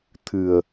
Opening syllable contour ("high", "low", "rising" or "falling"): low